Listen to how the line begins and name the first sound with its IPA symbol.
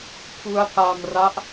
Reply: pʰ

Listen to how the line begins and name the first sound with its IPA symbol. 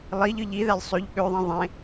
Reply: lˠ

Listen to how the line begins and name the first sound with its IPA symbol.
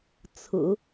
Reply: t͡sʰ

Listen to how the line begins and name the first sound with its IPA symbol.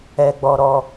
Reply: ɛ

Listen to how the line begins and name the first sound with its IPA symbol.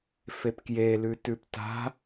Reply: f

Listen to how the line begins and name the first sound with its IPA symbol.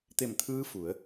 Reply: t̪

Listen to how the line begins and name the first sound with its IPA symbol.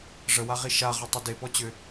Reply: ʐ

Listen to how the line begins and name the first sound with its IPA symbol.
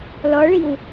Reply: l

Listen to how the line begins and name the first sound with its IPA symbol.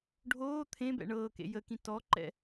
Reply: ɖʱ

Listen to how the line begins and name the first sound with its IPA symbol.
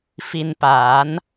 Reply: f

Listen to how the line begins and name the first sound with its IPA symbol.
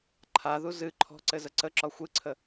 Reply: ǃʰ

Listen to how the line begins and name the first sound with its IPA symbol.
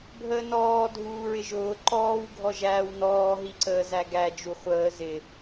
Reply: bʱ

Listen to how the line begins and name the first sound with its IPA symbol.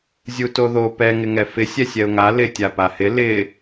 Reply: zʲ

